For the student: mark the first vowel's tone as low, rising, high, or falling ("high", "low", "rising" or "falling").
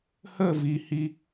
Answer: falling